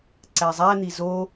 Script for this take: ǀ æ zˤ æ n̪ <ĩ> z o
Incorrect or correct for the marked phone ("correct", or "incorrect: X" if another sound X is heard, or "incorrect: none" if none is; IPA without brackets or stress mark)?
incorrect: i